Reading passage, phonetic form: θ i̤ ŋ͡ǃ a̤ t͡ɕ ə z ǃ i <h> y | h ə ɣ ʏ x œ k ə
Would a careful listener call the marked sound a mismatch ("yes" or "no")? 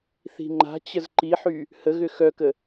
yes